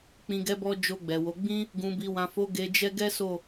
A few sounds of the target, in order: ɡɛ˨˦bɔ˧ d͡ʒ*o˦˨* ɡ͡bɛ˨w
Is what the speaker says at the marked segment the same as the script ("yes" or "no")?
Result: no